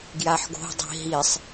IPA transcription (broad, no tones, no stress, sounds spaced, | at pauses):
ɡ j a ħ ɡ o̤ dˤ i̤ ɦ i sˤ